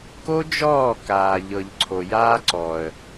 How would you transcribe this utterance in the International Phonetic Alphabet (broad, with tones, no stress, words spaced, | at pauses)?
ko˦d͡ʒɔː˦˨ kaː˨ʎɤ˨ʎ ǀʰo˨jaː˦ ǀɔ˨ə̯